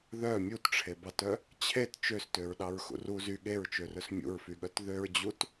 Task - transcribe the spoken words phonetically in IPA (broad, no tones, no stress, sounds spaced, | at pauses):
ð œ mʲ u t ʈ͡ʂʰ e b ɑ t œ | t͡ɕʰ e t t͡ʃ ø s t ø ɹ ɗ ɑ ɹ x ṵ r u z y ɠ e ɹ t͡ʃ ø r ɵ s mʲ ṵ ɹ f y ɠ œ t ð ø ɹ d͡ʑ u t